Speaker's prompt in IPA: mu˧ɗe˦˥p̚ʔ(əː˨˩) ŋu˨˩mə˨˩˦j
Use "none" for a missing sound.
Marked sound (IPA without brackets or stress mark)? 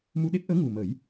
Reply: əː˧˥